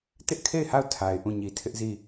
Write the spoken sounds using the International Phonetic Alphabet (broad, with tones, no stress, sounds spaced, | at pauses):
t ɪ˦ ʔ kʰ e˦˨ ɪ̯ h a˦˨ ʊ̯ tʰ a˨ ɪ̯ ʔ ũ˦˨ ɲ i˨ tʰ ɪ˦ ʔ z i˦˨